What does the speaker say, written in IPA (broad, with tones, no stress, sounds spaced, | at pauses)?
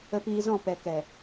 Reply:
ə˧ p iː˧ z ɔ̃˦˨ p ɛ˨ k ɛ˨